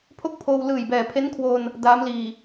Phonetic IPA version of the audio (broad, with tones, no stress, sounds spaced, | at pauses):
pʰ o˥˩ k̚ pʰ oː˧ w l ɯː˨˩ j b ɛː˨˩ pʰ e˦˥ n kʰ w o˧ n | d aː˦˥ m l iː˨˩